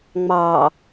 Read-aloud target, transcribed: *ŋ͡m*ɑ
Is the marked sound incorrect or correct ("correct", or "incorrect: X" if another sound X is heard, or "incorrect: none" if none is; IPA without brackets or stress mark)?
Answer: correct